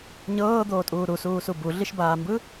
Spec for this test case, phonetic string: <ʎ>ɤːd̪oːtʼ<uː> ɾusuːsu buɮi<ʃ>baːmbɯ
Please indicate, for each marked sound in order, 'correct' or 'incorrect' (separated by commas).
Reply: incorrect, correct, correct